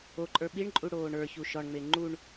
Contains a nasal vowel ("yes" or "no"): no